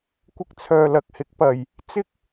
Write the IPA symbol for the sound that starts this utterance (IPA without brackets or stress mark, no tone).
kʷ